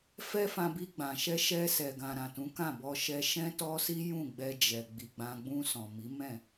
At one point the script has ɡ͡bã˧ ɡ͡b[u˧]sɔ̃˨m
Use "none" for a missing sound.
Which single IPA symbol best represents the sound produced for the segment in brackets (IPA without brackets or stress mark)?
ũ˧